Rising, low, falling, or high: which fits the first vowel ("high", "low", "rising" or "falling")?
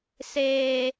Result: high